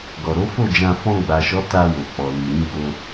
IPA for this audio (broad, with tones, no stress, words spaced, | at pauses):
ɡɔ˨ɾo˨˦fo˦˨d͡ʒã˧ fɔ̃˧ɡ͡ba˨ʃɔ˨˦ ta˧wo˨k͡pɔ˨ li˨ɾĩ˨˦ ɡ͡bo˧